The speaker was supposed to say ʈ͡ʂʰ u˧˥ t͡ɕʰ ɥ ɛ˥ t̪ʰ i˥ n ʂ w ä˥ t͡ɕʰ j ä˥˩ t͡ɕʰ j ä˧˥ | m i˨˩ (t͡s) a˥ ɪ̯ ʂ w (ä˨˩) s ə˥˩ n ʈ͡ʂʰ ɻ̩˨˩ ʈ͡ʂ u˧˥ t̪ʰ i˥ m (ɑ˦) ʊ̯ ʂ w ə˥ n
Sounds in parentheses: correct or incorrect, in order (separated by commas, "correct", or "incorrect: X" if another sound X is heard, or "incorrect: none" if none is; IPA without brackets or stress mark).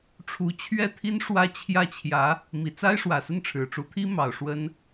correct, correct, incorrect: ɑ˨˩